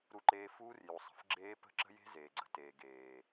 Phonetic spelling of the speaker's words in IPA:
ɾ u˦ ǃ eː˦ f uː˦ r j u˨ sˤ ə̤˨ f ɡ͡ǁ eː˦ p ə̤˦ ǁ ə̤˦ j e̤˦ z eː˨ ɡ͡ǀ ə̤˦ t eː˨ ɡ eː˨

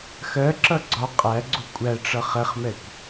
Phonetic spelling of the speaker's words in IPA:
x ɜ ǁ ʌ ɡ͡ǀ ɒ qʼ æ ɡ͡ǀ u kʷʼ æ ʈ͡ʂ ʌ χ ɛ χ m ɛ kʷ

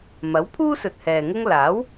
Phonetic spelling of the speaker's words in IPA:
m ɐ˨˥ w pʰ uː˥ s ɵ˨ t̚ h ɛː˨ ŋ ʊ˥ ŋ l aː˨˥ w

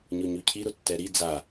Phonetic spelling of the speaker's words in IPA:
ɲ ʊ ɲ ʉ cʰ i ɾ ʊ tː ɛ ɾ i d͡z a

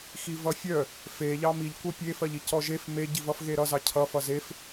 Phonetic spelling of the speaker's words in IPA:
x i v ʌ fʲ œ | f e ʎ ɑ m i ʎ kʷ ɜ pʲ e f ɜ ʎ i c ɔ ʒ e f m e ɟ i v ʌ f ɣ e ɾ ʌ z ɑ cʰ ʌ f ʌ z e f

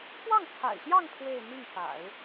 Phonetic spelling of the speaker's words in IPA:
k w ɑ˥˩ ŋ t͡sʰ a̰˨˩ ɪ̯ ɕ j ɑ˥˧ ŋ pʰ w e˥˧ ɪ̯ n̪ i˥˩ ŋ f a̰˨˩˦ ɪ̯

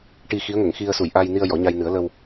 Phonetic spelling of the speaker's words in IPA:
ʈ i˧ x i˧˥ ə̯ ŋ ə˨˩˨ ŋ x i˧ ə̯ s u˨˩˨ j ʔ a˧ j n i˧ ə̯ j ɔ˨˩˦ ɲ a˧ j n ɨ˨˩˦ ə̯ l ə˧ w

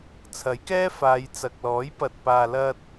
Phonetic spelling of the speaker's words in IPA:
t͡sʰ ɐ˨˥ j k ɛː˥ f aː˨˧ j t͡s ɐ˨ k̚ l ɔː˨˥ j p ɐ˨ t̚ p aː˨ l ɐ˧ t̚

